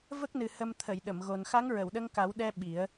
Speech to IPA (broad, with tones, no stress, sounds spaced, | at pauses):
v ə˦˥ k̚ n ɨ˨˩ h ə˧ m t̪ʰ ə˨˩˨ j ɗ ə˨˩˨ m ɣ o˨˩ n x a˧˥ ŋ ɹ ə˨˩˨ w ɗ ə˧ ŋ k a˨˩˦ w ɗ ɛ˧ ɓ i˨˩˦ ə̯